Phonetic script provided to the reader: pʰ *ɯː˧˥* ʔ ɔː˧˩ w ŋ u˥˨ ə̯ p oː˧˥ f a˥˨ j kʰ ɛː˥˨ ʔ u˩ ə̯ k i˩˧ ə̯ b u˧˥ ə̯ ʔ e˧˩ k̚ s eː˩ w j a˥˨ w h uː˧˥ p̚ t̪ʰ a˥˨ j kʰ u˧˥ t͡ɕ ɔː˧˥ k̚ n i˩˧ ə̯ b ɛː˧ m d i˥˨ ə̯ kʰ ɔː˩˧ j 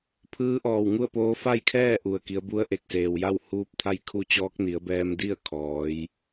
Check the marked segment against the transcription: correct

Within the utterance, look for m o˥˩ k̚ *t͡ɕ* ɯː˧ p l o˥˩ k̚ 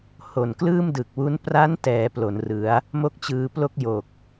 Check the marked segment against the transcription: correct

